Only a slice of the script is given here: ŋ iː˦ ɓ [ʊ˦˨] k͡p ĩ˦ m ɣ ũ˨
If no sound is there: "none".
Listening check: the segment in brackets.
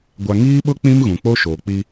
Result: ʊ˦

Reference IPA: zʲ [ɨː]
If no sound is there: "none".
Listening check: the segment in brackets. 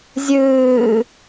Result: ɨː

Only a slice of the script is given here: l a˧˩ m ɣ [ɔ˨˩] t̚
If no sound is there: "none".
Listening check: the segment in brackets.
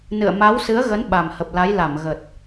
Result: ə˨˩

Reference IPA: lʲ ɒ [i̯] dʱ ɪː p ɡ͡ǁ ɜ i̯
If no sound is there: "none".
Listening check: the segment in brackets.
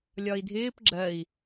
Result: i̯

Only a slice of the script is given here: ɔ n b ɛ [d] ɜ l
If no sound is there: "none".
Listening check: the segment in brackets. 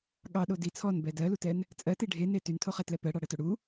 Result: d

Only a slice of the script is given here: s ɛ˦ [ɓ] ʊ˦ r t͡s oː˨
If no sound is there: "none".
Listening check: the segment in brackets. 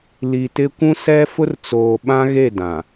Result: f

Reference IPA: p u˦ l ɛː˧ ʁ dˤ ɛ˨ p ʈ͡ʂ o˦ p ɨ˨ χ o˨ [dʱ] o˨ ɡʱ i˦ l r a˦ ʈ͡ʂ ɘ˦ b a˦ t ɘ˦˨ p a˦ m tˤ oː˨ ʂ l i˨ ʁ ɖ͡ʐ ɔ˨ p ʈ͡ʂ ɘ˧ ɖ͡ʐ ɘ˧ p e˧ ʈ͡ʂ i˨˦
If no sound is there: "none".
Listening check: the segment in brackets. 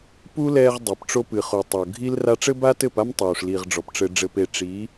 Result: tˤ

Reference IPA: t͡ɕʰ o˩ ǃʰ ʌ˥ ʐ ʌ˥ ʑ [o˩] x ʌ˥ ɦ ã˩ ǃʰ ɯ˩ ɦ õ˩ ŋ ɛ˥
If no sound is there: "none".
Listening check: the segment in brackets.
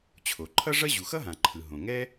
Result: u˩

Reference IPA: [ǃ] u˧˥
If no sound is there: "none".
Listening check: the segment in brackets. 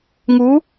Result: ŋ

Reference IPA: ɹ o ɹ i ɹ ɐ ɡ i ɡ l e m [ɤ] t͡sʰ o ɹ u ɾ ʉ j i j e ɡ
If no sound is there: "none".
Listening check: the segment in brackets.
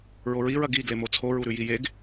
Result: o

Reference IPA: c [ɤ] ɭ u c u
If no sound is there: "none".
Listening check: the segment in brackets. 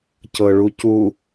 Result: ɤ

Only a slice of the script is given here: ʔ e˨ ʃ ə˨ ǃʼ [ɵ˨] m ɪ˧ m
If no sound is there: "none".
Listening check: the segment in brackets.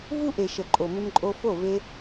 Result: o˨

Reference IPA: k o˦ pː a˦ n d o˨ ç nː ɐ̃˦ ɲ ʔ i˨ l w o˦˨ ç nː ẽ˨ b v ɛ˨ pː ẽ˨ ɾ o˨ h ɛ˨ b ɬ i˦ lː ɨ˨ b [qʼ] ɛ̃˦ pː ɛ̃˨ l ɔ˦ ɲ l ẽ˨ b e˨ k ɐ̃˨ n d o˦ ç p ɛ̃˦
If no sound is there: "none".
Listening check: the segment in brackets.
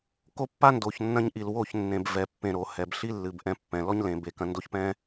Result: ʔ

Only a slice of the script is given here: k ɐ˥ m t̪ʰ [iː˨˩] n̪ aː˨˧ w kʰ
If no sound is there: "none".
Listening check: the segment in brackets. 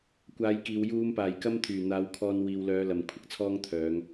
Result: yː˨˩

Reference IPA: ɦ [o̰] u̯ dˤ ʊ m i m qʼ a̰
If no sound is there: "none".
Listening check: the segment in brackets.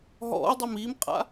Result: ɔ̰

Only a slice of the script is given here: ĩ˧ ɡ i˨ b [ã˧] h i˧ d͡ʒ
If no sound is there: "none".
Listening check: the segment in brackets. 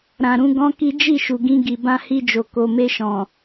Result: ã˧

